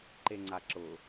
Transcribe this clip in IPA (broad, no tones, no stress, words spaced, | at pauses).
ǃeŋ͡ǀaǁʊ